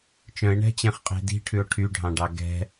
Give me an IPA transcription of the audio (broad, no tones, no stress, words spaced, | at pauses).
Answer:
t͡ʃœ̃e̯ɳɛ̤t͡ɕẽχqʼe̤ di̤ʈʰʉo̯ ʈʰyɖʱɑ̃ɖɑ ɡɛ̤